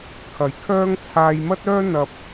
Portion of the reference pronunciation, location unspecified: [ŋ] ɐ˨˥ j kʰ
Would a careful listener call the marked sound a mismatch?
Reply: yes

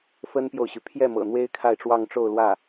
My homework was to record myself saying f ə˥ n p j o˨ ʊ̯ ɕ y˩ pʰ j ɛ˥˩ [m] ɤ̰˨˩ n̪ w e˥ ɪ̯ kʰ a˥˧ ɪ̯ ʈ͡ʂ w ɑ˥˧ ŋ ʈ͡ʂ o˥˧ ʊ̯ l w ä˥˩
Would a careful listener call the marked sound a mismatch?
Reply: no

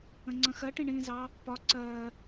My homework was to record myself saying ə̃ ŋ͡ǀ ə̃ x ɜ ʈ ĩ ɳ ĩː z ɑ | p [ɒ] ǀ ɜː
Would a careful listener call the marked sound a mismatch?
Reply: no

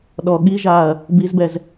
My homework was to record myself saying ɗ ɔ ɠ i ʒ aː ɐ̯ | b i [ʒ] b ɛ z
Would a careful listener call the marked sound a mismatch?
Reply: yes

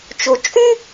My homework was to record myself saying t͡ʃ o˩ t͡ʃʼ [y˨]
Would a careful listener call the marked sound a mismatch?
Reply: yes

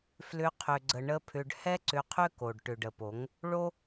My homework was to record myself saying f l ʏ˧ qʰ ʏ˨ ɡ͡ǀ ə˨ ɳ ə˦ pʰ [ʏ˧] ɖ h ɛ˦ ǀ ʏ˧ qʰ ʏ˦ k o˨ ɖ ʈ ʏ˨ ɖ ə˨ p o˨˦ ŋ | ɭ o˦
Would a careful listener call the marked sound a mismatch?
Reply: no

